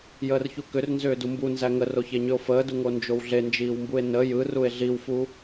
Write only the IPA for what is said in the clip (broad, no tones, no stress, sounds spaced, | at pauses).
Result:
j əː r ç u k ʏ r n z ʏː d u m b u n z æ ŋ ə r o ç e ɲ ʏ o̯ f əː d u ŋ o n d͡ʒ o w ɮ e n d͡ʒ iː w m b u e̯ n ə j ɯ r u e̯ ɮ i w f u